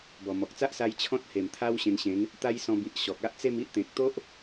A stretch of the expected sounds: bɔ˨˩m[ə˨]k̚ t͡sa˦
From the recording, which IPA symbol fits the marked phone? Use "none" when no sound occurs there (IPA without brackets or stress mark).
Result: ɔ˨